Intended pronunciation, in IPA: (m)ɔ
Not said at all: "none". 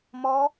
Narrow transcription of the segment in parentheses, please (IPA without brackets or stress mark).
m